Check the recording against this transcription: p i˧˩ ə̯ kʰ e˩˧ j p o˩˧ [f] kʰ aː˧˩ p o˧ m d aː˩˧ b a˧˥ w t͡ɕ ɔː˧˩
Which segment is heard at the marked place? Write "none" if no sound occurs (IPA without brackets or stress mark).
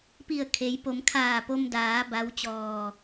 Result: m